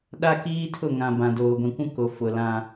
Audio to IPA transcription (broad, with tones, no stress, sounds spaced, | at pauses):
ɗ a˦ k iː˦ tʰ ʊ˦˨ ŋ ã˨ b ã˨ d oː˨ ɡʷ ĩ˨ kʷ ũ˦ k o˨ f ʊ˨ l ã˦